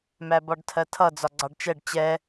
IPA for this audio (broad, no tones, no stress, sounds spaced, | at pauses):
m æ b ɒ ɖ tʰ ɜ tʰ ʌ d͡z ɒ ɡ͡ǀ ɑ ɖ t͡ʃ ɛ ɖ t͡ɕ ɛ